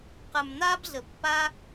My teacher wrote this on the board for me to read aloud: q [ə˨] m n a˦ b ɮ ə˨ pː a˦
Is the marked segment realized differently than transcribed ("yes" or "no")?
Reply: yes